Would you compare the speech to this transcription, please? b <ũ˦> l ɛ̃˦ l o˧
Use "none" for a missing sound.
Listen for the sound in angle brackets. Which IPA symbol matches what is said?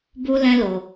u˦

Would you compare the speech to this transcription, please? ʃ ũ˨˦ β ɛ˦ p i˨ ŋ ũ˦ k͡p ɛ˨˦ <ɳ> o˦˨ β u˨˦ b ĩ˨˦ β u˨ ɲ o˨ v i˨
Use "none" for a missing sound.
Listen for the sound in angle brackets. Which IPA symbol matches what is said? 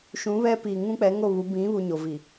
ŋ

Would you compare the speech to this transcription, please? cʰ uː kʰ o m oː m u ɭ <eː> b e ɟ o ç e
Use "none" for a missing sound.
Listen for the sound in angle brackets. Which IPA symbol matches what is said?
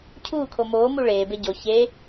eː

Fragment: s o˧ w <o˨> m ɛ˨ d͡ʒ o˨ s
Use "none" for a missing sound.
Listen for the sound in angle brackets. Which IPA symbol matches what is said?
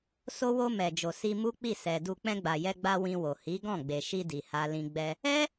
o˧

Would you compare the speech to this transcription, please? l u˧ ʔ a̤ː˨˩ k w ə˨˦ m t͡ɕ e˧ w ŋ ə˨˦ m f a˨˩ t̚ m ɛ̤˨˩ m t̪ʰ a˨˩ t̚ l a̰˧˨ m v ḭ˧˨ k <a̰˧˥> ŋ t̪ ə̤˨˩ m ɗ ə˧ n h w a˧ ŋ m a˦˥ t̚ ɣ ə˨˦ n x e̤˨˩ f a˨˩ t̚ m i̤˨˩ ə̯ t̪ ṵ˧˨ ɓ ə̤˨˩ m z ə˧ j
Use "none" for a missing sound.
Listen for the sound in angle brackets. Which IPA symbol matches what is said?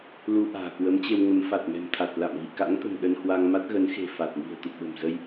a̰˧˥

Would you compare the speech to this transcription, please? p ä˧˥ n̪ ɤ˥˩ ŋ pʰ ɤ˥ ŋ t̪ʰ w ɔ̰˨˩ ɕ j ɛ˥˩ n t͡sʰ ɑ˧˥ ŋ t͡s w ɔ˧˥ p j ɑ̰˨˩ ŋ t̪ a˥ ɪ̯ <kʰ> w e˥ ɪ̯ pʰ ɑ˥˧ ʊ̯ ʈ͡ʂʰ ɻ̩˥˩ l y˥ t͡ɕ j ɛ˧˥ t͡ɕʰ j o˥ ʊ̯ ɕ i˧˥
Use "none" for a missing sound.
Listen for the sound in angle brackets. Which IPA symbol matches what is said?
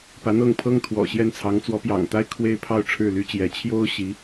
kʰ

